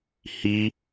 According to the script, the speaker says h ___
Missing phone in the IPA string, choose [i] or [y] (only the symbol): i